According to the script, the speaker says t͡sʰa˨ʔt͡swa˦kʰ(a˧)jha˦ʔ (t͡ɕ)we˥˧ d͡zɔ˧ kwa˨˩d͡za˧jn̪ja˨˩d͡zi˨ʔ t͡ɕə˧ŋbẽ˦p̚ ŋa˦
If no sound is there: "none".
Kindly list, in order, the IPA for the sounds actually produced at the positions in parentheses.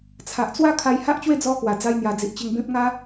a˧, t͡ɕ

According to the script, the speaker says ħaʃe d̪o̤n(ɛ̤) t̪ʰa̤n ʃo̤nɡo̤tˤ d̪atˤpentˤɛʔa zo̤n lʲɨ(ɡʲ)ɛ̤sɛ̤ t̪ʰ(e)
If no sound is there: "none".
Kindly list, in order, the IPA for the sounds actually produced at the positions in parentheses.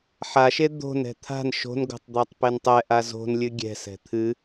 ɛ̤, ɡʲ, ɨ

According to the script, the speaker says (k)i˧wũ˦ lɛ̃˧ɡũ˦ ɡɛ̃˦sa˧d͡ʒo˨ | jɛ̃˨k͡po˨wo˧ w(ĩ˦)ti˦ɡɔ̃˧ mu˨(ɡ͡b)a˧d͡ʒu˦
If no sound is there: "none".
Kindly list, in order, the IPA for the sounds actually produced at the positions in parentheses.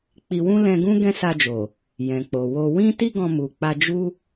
k͡p, ĩ˦, k͡p

